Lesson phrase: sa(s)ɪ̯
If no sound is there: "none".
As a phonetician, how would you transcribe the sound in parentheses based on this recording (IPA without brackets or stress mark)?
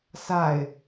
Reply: none